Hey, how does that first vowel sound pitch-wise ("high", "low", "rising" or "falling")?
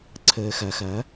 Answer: low